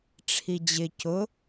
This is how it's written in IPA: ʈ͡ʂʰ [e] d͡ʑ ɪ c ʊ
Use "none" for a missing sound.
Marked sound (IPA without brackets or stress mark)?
i